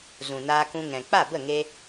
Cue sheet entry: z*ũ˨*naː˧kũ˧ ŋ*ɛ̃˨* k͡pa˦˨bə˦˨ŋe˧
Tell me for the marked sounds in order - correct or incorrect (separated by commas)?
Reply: correct, correct